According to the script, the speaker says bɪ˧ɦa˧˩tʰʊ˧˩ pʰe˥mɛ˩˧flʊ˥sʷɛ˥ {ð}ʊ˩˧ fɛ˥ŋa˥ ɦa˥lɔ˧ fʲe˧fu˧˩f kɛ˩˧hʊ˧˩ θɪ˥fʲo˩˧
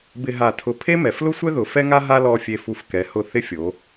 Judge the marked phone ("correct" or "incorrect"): correct